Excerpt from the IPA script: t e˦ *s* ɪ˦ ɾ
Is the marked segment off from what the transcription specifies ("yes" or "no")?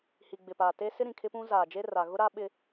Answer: no